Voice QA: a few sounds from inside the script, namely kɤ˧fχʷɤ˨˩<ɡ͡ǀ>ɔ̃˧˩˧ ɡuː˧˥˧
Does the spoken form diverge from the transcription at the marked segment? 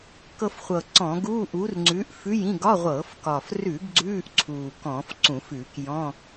yes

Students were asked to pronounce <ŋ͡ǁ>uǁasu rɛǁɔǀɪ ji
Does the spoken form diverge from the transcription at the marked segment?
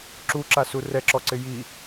yes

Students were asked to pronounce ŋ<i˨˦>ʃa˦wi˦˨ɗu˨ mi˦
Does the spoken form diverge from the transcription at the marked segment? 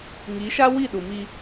no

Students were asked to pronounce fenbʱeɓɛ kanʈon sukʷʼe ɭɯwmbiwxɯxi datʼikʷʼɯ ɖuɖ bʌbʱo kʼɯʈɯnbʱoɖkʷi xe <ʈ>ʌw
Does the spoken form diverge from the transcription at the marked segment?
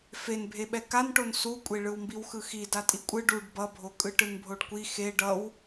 yes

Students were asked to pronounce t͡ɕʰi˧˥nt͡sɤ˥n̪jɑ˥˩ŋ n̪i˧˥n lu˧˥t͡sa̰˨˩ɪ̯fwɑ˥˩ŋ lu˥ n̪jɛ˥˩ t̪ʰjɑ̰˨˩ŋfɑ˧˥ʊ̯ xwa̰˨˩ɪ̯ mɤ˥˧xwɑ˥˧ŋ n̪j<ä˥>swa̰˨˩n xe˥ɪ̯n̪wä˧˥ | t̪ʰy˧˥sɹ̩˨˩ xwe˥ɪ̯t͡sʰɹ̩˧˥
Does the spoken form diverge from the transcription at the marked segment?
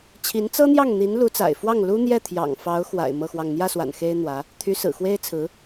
yes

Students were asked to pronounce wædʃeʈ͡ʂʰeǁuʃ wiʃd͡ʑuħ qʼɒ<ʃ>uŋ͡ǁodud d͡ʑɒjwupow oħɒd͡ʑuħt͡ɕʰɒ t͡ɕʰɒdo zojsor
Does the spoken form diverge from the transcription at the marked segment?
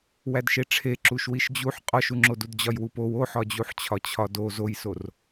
no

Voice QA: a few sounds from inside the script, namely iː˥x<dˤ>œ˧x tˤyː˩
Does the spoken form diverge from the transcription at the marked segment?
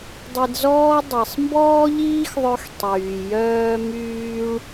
yes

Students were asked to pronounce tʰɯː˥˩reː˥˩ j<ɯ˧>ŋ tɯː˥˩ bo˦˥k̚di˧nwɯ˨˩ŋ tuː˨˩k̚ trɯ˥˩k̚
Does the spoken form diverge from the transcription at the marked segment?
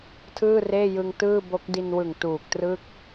no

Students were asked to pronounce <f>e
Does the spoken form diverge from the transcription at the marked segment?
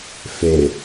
no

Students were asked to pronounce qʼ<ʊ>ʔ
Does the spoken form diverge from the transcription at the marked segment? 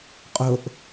no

